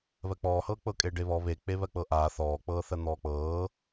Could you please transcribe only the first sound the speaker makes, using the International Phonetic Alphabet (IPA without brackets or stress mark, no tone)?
β